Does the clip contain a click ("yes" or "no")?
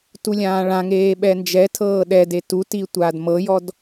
no